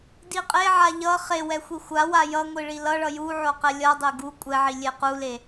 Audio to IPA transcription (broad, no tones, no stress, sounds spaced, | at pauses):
d i qʼ e ʕ a ʎ ʌ χ e w ɛ xʷ i xʷ a w a j ʌ ŋʷ i ɭ i l ʌ ɭ ʌ j u ʕ o q ɛ lʲ ʌ dˤ e ɡ u kʷʼ ɛ ʕ i lʲ e q u l e